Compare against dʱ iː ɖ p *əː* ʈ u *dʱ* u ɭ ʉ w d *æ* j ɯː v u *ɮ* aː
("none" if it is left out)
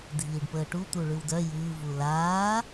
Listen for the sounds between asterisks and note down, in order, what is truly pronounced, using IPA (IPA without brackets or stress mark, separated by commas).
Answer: əː, t̪, œ, l